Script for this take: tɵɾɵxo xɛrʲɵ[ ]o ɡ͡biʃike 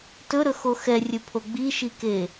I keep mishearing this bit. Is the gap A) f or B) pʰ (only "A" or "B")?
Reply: B